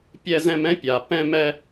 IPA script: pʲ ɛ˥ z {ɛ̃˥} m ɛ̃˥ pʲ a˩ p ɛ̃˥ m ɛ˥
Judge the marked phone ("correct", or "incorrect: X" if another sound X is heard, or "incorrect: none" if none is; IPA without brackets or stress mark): correct